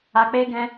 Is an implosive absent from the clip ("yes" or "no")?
yes